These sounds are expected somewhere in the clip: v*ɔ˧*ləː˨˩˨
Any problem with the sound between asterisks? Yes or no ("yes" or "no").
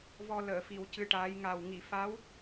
no